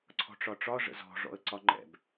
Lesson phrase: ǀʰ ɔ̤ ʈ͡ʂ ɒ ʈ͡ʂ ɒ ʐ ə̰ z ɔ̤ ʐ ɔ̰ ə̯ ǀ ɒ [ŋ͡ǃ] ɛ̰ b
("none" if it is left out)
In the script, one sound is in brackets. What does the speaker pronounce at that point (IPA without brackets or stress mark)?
ŋ͡ǃ